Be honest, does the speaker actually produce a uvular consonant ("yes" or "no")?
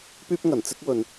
no